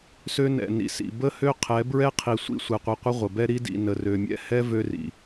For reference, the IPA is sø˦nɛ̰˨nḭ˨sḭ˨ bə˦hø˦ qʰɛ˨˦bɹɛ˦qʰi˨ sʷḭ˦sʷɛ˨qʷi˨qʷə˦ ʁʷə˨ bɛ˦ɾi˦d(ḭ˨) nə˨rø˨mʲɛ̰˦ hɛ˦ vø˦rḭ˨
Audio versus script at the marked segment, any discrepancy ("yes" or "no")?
no